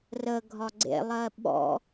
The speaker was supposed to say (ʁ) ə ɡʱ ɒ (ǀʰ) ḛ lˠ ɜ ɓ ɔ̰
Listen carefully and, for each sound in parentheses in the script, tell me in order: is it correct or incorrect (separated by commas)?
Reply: incorrect, incorrect